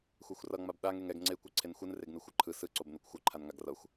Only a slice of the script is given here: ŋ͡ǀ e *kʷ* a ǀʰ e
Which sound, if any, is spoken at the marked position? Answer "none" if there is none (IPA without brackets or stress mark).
kʷ